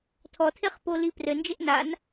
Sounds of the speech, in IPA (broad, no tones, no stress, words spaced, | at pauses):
tʰɔtʰeχpoli prɘnd͡ʒɘʔ nan